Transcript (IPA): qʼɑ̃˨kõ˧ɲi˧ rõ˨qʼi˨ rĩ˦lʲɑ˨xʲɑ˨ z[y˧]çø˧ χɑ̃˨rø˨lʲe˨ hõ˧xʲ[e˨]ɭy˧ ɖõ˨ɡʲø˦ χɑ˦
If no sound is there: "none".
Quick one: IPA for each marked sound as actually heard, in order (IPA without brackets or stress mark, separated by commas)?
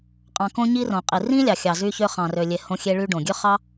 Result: y˧, e˧